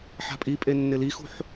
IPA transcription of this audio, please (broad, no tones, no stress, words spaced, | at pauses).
ħa̤pʼipʼe nːɪlixṳħ